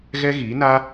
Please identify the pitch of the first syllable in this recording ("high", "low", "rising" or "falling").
high